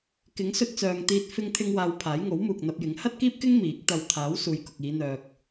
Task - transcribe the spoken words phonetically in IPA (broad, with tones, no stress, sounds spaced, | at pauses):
k ɪ˨˥ ŋ s ɵ˧ t̚ t͡s œː˨ ŋ t̪ iː˧ t̚ f ɪ˧ ŋ t̪ʰ ɪ˧ ŋ w aː˧ w pʰ aː˨˥ j ŋ o˨˥ w m uː˨ k̚ n̪ ɐ˧ p̚ j ɪ˨˥ ŋ h ɐ˥ t̚ k iː˥ p̚ k ɪ˥ ŋ m iː˨˥ k̚ t̪ ɐ˧ w t̪ʰ aː˨˥ w s uː˨ j k ʊ˨ k̚ iː˨˧ n̪ œː˧ k̚